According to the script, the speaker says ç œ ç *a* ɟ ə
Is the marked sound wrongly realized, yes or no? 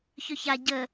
no